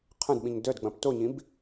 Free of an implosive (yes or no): no